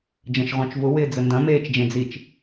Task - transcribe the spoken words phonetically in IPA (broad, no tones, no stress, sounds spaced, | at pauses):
d͡ʒ ɐ̃ ʃ ʁ õ t͡ʃ v ʊ w ɪː d͡z ə n d ɐ̃ m eː t͡ʃ d͡ʒ ẽ d͡z i t͡ʃ